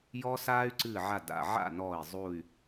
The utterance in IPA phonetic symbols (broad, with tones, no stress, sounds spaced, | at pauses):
j ɔ˦ s aː˦ y̯ ǀ ɨ˧˩ ʕ a˧˩ d a̰˧˩ ʕ a̰˥˨ n ɔː˧˩ i̯ zˤ u˧˩ y̯